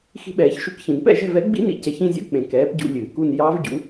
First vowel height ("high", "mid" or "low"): high